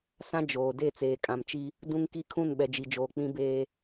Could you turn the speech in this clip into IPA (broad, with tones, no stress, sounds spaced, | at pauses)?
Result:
s ã˦ d͡ʒ oː˨ d e˦˨ t͡s eː˨ kʼ ã˨ m t͡ʃ i˦ | d ũ˦ ŋ k i˦ kʰ ũ˦˨ n ɓ ɛ˨ d͡ʒ i˨ d͡ʒ oː˨ k͡p ĩ˦ b eː˦